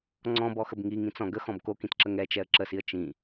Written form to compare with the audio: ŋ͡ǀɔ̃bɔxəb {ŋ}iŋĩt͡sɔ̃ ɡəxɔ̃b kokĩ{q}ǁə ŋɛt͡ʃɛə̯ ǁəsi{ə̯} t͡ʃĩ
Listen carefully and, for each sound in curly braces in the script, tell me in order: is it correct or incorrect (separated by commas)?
correct, incorrect, correct